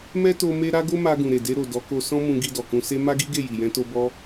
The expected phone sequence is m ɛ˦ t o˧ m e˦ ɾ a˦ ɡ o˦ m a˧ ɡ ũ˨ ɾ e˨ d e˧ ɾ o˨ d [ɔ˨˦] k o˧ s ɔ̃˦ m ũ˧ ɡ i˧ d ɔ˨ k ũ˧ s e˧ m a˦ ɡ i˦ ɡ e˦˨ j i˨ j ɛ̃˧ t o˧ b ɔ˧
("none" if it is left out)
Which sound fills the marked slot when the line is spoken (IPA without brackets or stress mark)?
ɔ˨˦